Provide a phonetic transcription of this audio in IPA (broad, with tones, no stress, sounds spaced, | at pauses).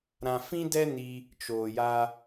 ɾ ã˧ f ĩ˦ d ɛ˦ n i˧ | t͡ʃ oː˨ j a˧